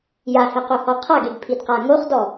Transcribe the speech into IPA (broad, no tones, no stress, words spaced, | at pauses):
jahɛqohɔ qʰaɡeɡpʰidqa ŋoχdɔ